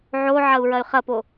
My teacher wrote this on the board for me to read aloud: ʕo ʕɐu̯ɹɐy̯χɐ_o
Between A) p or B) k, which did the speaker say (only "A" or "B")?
A